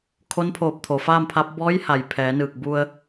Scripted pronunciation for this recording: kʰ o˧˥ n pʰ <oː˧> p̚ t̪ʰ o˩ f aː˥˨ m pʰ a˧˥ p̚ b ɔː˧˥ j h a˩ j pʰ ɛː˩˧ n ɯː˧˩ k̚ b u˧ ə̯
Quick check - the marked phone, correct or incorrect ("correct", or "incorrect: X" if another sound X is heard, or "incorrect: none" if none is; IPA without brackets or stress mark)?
incorrect: oː˧˩